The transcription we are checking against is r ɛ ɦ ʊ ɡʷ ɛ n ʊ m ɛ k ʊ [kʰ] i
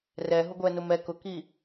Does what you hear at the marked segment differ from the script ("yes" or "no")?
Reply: yes